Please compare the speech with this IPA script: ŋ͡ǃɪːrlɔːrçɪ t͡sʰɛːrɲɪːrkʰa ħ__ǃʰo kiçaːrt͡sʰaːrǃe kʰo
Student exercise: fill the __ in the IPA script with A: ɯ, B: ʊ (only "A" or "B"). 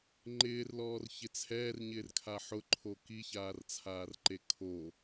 B